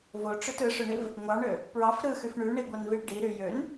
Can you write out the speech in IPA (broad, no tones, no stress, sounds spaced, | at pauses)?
v o ʈ͡ʂ ø t ɯ ʂ ø ɳ i v | ŋʷ ɑ ɳ ø | p ɹ ɑ f ɾ ɯ x y f ɳ y ɳ i ɡʷ ɑ n v i ɭ ɖ i ɾ y j ø n